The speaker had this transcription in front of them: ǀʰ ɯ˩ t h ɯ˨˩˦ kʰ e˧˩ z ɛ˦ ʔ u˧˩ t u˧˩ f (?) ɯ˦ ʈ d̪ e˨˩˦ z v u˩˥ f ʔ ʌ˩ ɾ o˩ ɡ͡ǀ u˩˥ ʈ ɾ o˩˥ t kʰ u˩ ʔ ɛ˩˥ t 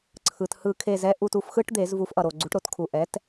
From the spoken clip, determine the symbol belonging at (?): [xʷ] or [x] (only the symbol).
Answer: x